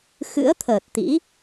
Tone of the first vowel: rising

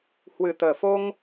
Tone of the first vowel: low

